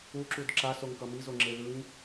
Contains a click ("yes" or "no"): yes